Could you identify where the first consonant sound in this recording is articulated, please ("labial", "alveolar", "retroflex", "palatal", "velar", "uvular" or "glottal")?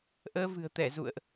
glottal